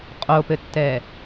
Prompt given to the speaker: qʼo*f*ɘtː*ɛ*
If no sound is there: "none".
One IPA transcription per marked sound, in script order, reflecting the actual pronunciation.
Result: p, ɛ

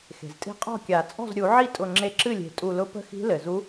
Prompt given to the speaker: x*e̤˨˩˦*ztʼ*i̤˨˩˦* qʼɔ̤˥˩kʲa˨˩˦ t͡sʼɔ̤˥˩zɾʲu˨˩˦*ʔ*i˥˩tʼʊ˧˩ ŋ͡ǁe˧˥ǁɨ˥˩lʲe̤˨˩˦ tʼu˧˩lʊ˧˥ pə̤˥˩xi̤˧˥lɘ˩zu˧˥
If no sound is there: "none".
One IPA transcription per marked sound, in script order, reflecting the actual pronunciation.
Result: e̤˩, i̤˥˩, ʕ

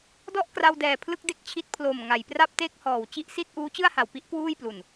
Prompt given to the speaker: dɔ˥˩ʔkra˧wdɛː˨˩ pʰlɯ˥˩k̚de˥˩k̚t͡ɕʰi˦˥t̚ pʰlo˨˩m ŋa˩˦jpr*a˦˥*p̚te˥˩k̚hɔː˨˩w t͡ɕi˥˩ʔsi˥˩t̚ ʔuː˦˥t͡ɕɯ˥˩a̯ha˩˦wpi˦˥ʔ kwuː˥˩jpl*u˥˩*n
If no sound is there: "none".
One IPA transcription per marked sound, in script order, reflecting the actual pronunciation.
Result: a˥˩, u˨˩

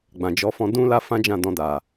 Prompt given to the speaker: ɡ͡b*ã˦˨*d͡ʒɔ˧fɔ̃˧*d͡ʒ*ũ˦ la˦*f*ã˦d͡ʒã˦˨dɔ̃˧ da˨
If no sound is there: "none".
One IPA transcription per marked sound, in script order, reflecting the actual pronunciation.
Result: ã˨, d, f

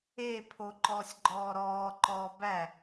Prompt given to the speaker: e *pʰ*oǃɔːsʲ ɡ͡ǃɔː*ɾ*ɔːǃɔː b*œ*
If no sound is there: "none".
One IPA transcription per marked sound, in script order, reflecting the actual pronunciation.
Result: pʰ, ɾ, æ

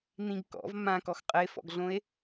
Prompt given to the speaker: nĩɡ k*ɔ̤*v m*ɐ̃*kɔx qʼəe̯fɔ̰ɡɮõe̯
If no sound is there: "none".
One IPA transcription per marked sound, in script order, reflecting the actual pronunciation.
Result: ɔ̰, ã

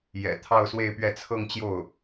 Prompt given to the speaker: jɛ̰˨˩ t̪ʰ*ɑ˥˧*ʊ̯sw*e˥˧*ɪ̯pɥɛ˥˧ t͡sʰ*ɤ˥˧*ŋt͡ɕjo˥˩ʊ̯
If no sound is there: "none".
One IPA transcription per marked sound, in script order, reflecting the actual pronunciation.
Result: ɑ˥˧, e˥˧, ɤ˥˧

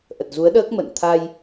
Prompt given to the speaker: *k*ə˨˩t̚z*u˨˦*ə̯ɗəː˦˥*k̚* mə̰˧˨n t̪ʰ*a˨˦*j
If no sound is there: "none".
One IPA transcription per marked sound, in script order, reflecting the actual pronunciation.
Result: ʔ, u˨˦, k̚, a˧

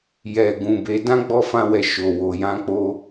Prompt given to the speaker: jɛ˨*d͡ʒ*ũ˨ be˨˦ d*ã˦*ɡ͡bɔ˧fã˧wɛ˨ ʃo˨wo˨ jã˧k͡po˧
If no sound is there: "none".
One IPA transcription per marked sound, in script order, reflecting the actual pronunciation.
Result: ɡ, ã˦

